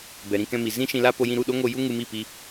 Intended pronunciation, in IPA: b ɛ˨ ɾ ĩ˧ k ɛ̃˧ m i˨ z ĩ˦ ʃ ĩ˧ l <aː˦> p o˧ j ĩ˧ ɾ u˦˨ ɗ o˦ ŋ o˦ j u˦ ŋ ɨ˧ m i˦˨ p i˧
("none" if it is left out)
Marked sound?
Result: a˦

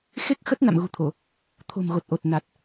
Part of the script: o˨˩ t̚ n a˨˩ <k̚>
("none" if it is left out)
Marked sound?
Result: t̚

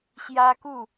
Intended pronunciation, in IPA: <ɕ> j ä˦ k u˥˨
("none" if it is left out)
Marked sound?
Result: ɕ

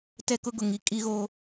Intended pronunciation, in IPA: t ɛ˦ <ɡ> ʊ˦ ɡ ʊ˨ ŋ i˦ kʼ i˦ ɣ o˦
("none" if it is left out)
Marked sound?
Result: k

